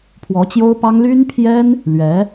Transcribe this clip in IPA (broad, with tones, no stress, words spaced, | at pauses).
pʰwɔ˧˥t͡ɕjo˥ʊ̯pɑ˥ŋ ly˥npʰjɛ˥n | lɥɛ˧˥